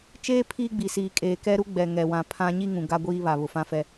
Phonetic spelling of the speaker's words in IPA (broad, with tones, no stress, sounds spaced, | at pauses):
t͡ʃ eː˦ pʰ iː˦ ɡ͡b i˨ s iː˨ kʼ eː˨ k ɛ˦ ɾ u˦ ɡ͡b ɛ˨ ŋ ɛ˨ w ã˨ pʰ ã˦ ɲ i˦ ŋ ũ˨ ɡ a˦ ɡʷ iː˦ β a˨ β ʊ˨ f ã˦ f ɛ˦